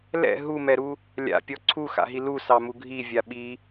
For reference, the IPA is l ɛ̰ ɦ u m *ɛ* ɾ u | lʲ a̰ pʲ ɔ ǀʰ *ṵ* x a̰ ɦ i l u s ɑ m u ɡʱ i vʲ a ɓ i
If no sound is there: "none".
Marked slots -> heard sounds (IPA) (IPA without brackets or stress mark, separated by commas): ɛ, u